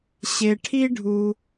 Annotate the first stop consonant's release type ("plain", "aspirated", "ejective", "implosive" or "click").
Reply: aspirated